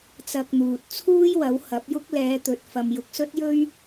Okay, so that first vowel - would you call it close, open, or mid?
open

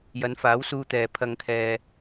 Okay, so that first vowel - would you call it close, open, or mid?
open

